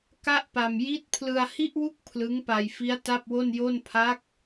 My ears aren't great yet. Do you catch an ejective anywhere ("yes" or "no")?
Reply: no